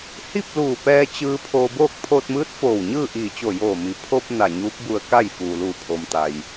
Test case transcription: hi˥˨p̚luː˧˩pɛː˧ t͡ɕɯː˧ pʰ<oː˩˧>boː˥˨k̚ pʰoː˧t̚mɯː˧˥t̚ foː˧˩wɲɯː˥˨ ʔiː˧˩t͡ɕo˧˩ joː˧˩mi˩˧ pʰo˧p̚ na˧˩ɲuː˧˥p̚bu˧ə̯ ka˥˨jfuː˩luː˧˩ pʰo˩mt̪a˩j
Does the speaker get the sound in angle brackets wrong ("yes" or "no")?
yes